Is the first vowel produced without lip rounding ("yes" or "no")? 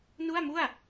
no